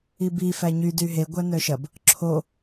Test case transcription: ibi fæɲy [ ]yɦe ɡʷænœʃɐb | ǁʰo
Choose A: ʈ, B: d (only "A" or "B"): B